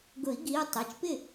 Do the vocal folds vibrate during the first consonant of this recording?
yes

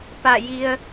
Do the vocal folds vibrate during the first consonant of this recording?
no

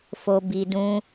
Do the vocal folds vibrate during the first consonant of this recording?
no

